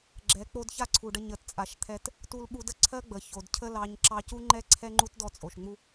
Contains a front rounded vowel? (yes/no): no